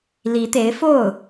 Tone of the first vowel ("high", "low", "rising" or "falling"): rising